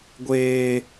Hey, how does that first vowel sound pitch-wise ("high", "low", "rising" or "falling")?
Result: high